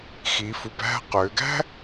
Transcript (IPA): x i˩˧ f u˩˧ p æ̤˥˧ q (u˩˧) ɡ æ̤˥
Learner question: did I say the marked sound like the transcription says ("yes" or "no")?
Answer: no